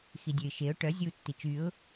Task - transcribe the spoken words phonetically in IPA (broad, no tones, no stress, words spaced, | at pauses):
xidʲøɪ̯ʃeʊ̯ ʈœ zʲu tːit͡ʃyʊ̯